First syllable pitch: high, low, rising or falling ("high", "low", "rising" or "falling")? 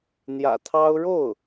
low